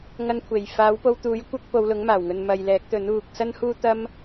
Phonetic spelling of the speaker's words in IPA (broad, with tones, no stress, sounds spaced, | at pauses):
ŋ ɐ˧ n kʷʰ e˨˩ j f aː˨˥ w p o˧ w t̪ uː˨˥ j kʷ ɐ˥ k̚ p o˨˧ w l ʊ˨˥ ŋ m aː˨˩ w ŋ ɵ˨ n m ɐ˨ j l ɛː˨˥ k̚ t̪ ɵ˨˥ n uː˨ k̚ s ɐ˥ n h uː˥ t̪ ɐ˥ m